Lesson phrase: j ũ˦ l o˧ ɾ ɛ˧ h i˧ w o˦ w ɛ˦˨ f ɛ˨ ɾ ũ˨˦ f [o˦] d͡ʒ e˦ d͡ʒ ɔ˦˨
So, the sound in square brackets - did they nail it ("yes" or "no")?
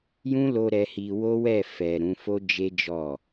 yes